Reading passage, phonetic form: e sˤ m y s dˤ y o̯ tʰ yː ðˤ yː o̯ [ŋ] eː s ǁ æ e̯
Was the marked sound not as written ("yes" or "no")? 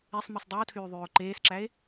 yes